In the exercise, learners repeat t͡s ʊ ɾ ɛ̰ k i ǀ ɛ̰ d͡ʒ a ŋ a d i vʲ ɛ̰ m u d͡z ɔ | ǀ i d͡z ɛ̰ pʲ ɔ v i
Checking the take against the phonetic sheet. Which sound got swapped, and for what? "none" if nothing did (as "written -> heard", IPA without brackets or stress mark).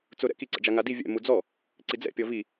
none